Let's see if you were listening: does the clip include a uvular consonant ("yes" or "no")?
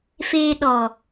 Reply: no